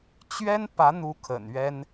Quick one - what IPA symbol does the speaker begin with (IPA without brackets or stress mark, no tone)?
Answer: t͡ɕ